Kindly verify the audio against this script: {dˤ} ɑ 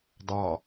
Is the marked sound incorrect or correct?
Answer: correct